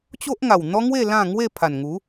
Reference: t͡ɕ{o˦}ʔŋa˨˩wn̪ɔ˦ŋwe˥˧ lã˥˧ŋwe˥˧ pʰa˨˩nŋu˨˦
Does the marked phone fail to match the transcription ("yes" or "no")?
no